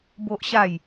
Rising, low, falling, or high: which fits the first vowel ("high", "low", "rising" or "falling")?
high